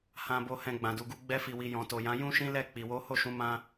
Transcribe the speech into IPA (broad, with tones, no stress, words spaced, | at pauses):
hã˨ bo˨hɛ̃˨ ɡ͡bã˨du˨ɡu˧ ɡ͡bɛ˧fi˨wi˨ jɔ̃˨to˨jã˨˦ jũ˦ʃĩ˦ lɛ˦˨k͡pi˨ wo˨˦ho˦˨ʃũ˨˦ mã˦